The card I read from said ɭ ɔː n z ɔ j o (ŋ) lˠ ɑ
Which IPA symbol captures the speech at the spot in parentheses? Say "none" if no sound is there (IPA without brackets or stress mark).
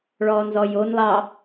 n